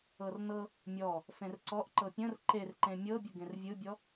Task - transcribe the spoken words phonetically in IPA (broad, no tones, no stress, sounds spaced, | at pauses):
ɤ r n ɤ | mʲ ɔ | f ẽ r ǀ ɔ ʔ ǃ ɤ pʲ ə̃ r ǃ e r ǃ ẽ mʲ ɤ bʲ ə ɡ ẽ r vʲ ɯ bʲ ɔ